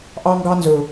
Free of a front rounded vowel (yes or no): yes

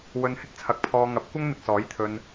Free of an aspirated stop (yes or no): no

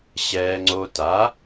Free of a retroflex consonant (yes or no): yes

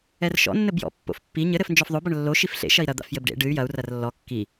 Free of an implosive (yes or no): yes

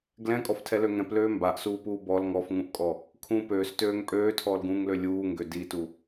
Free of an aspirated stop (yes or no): no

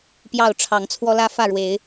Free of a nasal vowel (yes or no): yes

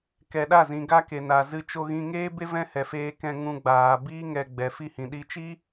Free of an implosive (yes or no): no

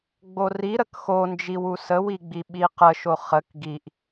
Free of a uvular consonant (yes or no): no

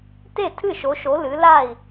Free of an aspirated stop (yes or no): no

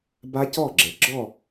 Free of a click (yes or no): no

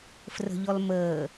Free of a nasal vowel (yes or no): yes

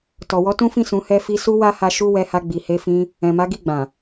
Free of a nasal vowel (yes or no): no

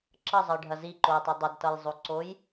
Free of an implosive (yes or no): yes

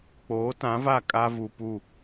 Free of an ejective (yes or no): no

